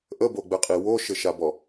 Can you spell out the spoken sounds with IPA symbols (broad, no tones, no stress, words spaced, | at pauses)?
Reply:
ʔəboɡ͡bɘqʼi woʃɘʃabɔ